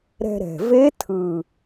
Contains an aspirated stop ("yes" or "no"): yes